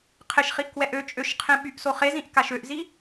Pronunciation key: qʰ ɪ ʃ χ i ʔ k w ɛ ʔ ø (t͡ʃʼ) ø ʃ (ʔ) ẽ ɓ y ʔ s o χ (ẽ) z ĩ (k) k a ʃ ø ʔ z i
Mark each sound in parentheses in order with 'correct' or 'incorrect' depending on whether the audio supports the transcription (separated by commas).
correct, incorrect, incorrect, incorrect